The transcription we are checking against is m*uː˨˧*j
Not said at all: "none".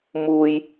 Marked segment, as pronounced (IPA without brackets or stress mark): uː˥